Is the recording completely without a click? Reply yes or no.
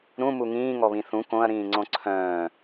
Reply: no